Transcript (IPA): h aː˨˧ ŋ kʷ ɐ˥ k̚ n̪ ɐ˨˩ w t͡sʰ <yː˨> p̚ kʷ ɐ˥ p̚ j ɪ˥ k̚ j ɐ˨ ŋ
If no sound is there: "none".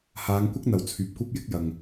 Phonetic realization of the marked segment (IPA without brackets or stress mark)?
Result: yː˨